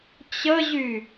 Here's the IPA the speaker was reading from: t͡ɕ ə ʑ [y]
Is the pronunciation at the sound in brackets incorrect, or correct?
correct